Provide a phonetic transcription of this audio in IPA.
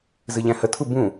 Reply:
z ɨ ʎ æ̃ h ə tʰ u b ũ

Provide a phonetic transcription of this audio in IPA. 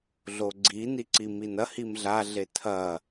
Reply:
ɮ o ɡ͡ǀ i n i ǀ i m i n ɐ h i m ɮ a ɮ e tʰ ɐ

